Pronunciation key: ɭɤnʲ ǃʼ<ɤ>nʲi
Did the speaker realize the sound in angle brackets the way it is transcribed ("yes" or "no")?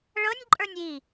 no